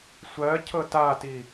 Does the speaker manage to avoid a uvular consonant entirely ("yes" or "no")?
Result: yes